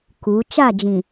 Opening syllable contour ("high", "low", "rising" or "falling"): rising